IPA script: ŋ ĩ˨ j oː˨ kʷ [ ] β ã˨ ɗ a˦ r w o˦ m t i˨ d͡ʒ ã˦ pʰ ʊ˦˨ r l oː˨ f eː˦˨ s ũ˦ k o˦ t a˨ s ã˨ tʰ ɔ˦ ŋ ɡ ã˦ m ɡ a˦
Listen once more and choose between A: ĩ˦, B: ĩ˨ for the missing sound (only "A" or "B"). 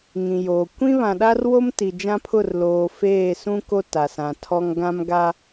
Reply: A